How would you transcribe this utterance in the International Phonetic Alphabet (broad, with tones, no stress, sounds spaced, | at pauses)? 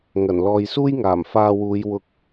ŋ ɐ˨˩ n l ɔː˨ j s uː˥ j ŋ aː˨˩ m f aː˧ w uː˨˧ j w ʊ˧ k̚